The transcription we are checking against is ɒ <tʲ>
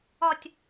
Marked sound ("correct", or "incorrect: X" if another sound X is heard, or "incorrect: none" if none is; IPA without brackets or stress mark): correct